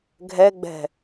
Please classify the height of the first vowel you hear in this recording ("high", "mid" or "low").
mid